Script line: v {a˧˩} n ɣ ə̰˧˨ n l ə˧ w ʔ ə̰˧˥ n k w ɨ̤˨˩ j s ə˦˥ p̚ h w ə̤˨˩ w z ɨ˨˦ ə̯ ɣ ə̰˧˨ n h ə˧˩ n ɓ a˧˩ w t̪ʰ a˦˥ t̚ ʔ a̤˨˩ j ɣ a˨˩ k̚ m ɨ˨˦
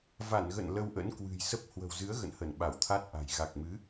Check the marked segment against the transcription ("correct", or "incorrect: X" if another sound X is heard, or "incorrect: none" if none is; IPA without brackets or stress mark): correct